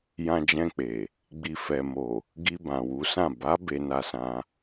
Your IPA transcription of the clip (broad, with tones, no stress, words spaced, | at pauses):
jã˧d͡ʒɛ̃˧k͡pe˨ | ɡ͡bi˨fɛ˨mo˨ | ɡi˧ bã˨wu˨˦sã˦˨ ba˨˦ be˧na˧sã˧